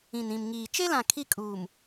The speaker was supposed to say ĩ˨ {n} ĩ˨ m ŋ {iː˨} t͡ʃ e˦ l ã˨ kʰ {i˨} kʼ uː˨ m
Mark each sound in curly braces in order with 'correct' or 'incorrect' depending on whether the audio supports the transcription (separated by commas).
correct, correct, incorrect